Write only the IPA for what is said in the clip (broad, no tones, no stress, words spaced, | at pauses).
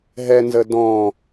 ɦɛnzə dɔ̃